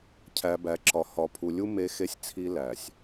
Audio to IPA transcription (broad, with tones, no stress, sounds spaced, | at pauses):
cʰ æ˨ b æ˨ ǁ ɒ˨ h ɒ˨ pʰ u˨ lʲ u˦ m e˦ x e˦ sʲ t͡sʰ i˦ l æ˨ sʲ